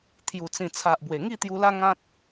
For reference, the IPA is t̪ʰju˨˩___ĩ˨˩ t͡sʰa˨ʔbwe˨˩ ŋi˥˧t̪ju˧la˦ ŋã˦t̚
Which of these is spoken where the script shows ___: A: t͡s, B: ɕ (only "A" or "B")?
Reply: A